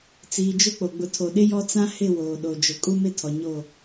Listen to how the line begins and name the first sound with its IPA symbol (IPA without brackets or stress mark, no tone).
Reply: t͡s